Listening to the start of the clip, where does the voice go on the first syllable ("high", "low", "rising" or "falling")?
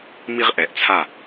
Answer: high